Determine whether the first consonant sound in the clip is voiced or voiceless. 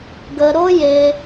voiced